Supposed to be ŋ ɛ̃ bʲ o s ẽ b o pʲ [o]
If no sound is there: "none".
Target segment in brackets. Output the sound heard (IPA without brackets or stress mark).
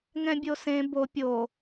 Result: o